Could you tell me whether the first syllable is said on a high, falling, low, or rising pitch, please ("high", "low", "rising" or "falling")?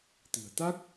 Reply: low